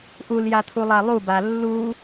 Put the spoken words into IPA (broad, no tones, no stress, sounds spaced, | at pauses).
ʔ u l j a t̪ʰ u lˠ a lˠ u b a lː u